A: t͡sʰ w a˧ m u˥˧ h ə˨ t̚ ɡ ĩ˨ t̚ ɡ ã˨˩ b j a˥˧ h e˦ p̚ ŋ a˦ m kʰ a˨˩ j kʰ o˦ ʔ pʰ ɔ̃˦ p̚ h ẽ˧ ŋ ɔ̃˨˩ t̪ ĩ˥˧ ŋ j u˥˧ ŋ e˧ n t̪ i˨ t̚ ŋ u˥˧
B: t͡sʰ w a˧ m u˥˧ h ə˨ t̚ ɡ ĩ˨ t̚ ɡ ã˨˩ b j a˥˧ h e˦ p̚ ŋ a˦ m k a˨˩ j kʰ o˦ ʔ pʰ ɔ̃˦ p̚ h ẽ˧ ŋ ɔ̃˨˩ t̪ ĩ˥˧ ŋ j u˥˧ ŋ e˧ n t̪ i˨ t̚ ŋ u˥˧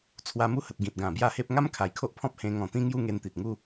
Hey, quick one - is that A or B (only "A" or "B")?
A